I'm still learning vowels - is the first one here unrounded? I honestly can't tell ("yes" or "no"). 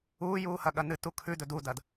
no